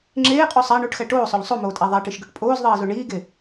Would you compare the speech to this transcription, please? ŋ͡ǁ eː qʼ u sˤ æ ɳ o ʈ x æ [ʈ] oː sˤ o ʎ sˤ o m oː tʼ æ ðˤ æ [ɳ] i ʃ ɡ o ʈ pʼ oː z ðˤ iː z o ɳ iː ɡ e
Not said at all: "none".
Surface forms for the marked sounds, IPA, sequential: ʈ, ʈ

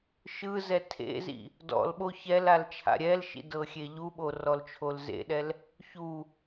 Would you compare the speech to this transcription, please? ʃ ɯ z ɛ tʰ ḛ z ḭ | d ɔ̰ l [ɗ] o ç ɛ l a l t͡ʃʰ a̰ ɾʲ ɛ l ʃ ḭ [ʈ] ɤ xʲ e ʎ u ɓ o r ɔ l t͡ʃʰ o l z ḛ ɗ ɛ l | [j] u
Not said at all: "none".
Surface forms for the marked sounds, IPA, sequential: ɓ, d, ç

